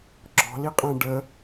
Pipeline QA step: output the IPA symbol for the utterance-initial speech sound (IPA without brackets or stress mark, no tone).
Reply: ɡ͡ǁ